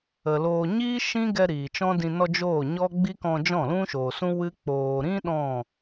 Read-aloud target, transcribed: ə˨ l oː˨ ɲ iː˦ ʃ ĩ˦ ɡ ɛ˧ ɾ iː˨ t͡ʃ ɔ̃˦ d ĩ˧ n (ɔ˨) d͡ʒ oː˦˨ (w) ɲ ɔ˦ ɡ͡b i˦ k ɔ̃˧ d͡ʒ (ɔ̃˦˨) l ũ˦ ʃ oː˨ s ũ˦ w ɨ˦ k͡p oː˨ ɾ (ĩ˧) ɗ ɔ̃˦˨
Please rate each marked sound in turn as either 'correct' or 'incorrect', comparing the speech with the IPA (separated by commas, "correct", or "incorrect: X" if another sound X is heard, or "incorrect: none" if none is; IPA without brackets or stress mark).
incorrect: ɔ˧, incorrect: none, correct, incorrect: ĩ˦